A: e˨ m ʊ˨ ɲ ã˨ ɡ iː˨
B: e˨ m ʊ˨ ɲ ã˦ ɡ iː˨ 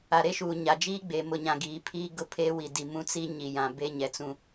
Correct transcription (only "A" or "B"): A